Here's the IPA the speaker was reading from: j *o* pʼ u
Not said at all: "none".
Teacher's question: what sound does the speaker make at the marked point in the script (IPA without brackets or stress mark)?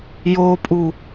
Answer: o